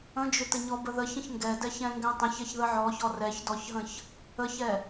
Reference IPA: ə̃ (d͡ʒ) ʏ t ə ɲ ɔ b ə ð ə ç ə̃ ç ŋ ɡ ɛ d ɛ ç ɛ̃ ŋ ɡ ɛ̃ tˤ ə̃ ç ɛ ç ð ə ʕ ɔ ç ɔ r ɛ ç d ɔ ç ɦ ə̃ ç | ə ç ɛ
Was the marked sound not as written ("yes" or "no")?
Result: no